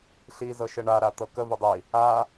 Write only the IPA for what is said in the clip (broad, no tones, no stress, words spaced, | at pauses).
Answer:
ɬizɤ ʃəɳaɾa t̪ɤkəvə dˤi | a